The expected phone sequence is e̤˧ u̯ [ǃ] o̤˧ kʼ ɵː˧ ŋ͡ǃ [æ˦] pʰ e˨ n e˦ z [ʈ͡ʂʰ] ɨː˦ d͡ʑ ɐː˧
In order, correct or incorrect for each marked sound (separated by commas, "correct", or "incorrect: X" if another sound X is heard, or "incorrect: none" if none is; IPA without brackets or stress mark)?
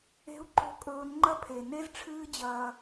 correct, incorrect: ɐ˦, correct